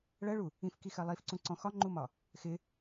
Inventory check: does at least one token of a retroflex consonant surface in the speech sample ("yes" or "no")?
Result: yes